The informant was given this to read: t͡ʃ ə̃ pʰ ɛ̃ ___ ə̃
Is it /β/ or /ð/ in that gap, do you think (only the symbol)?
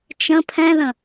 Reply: ð